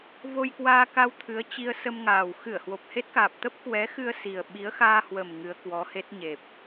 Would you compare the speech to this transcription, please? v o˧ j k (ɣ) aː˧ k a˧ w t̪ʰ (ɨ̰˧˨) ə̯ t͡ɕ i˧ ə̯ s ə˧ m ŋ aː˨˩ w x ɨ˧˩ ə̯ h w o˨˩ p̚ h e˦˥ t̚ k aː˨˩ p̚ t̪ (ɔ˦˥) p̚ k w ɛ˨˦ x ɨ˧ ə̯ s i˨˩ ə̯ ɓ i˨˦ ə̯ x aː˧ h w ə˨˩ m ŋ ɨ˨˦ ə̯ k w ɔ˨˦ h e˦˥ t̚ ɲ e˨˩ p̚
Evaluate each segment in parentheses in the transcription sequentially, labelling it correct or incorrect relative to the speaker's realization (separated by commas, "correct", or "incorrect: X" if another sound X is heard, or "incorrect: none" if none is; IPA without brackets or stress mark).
incorrect: w, incorrect: ɨ˨˦, incorrect: ə˦˥